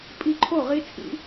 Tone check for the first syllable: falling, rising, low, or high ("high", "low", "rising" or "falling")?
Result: high